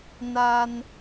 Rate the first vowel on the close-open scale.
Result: open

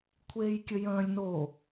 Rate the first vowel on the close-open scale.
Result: mid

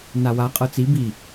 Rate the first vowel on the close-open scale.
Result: open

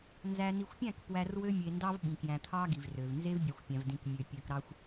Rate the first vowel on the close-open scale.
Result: open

